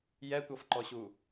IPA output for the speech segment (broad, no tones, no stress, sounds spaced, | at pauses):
j ɛ tʷ ɤ f ǃ ɔ ɕ u